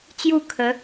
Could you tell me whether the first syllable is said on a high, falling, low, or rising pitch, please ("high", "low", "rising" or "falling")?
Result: falling